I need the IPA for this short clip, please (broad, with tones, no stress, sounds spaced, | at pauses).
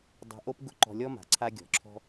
dˤ a̤˧ ʔ o˦ p ɡ ʊ˦ ǃ ɔ̤˧ lʲ ɔ˦ m a̤˨ ǀʰ a˧ ɡʲ ɔ̤˨ ǁʰ ɔ̤˧